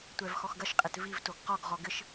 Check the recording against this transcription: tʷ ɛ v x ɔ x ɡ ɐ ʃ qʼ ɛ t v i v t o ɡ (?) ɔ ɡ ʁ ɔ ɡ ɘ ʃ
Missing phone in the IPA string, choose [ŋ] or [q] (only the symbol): q